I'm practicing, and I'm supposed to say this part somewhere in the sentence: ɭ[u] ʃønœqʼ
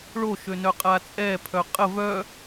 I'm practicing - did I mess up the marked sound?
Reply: yes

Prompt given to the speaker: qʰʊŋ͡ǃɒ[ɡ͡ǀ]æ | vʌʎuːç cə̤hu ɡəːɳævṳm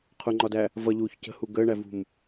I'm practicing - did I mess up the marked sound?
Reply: yes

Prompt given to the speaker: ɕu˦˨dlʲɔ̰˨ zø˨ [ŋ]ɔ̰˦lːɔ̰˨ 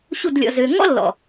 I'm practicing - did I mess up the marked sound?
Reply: no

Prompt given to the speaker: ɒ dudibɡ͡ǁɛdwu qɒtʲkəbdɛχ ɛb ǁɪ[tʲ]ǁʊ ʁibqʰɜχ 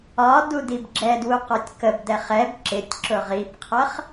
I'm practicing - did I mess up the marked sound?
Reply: no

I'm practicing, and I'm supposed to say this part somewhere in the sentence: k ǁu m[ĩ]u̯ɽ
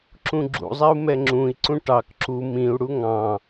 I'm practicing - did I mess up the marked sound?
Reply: no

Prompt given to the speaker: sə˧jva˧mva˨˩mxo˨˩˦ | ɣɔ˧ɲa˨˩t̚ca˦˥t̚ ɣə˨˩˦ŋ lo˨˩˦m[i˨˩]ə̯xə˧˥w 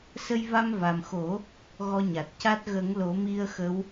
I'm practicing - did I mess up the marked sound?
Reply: yes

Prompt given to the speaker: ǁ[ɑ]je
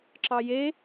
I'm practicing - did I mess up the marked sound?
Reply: no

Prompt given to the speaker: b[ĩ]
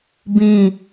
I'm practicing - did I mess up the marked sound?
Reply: no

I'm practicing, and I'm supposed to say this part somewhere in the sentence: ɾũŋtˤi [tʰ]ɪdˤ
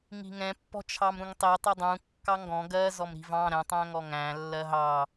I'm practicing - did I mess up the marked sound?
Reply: yes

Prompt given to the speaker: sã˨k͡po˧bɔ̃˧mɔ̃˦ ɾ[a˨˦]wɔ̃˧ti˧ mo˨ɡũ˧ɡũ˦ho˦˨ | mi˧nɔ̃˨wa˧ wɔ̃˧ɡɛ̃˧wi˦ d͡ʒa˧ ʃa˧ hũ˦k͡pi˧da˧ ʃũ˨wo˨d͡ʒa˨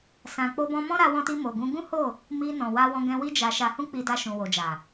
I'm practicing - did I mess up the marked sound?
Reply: yes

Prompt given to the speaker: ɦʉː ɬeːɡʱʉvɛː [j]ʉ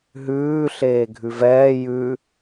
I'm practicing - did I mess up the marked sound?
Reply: no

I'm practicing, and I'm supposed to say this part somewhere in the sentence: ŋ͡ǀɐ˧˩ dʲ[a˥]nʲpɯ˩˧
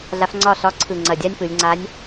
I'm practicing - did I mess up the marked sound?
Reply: no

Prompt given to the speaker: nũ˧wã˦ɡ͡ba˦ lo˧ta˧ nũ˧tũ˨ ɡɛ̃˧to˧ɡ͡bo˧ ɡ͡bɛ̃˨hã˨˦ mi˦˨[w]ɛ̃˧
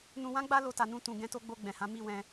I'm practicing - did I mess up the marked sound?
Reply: no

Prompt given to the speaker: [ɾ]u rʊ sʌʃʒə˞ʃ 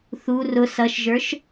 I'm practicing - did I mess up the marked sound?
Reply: yes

